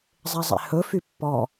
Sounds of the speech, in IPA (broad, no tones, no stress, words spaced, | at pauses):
zˤezˤḛhɵ fypːɔ